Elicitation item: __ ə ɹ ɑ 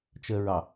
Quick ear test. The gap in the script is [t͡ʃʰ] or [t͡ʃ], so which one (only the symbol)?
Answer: t͡ʃ